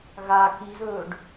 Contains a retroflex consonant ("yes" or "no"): yes